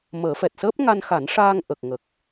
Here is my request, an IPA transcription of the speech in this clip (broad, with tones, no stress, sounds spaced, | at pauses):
m əː˨˩˦ f ɛ˨˩ t̚ s əː˦˥ p̚ ŋ a˧ n x a˨˩˦ n ʂ aː˧ ŋ ʔ ə˨˩ k̚ ŋ ə˨˩ k̚